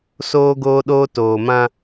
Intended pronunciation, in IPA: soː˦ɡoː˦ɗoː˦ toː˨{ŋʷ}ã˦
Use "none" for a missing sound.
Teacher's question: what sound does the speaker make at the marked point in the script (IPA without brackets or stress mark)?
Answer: m